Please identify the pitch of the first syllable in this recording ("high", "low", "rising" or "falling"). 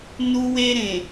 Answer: high